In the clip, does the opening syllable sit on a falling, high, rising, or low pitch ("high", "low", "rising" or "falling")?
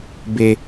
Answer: high